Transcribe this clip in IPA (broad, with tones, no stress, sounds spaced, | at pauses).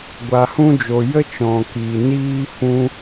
ɡʷ a˨ h ũ˧ d͡ʒ o˨ j ə˦ t͡ʃ ɔ̃˨ k iː˨ n iː˧ f ũ˦